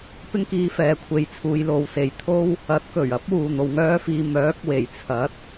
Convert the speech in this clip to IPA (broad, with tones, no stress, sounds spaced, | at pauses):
p ɪ˥ ŋ k iː˧ f ɛː˨˧ kʷʰ e˨˧ j t͡sʰ uː˨˧ j l o˨˧ w s e˨ j t̪ʰ o˥ w | ɐ˨˥ t̚ k ɵ˨˩ ɥ ɐ˨˥ p̚ w uː˨ n̪ o˨ w ŋ œː˥ f iː˧ m œː˨˥ k̚ w e˨˩ j t͡sʰ ɐ˨˥ t̚